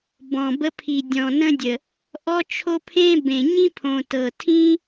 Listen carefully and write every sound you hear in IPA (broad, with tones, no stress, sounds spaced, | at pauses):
b ɔ̃˨ b ə˧ pʰ i˨ dʲ ɔ̃˨ n ə̃˧ dʲ ə˨ | ʔ ɔ˦ t͡ʃʰ o˦ pʰ ẽ˦ b ẽ˨ ɲ ĩ˦ pʰ õ˨ t ɤ˨ tʰ ĩ˦